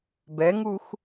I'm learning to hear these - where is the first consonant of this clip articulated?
lips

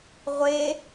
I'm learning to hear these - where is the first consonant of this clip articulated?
uvula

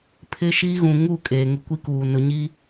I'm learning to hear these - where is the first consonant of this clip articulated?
lips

